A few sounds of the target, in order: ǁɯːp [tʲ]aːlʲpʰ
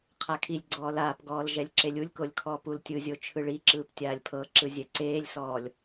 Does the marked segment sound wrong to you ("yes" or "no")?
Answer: no